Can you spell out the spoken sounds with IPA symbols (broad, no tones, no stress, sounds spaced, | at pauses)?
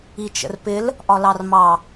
i t͡ʃ ə̰ r p ɪ l | ʔ ɒ l ɑ r m ɑ